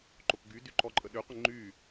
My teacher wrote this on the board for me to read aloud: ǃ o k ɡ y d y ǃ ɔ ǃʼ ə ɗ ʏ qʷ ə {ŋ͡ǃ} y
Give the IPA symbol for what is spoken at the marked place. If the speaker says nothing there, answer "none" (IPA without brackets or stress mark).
ŋ͡ǃ